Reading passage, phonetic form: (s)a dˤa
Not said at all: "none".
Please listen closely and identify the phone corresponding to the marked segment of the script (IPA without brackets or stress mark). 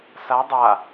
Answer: s